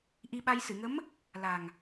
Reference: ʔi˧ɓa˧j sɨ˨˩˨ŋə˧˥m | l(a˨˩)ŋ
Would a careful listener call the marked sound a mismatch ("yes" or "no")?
no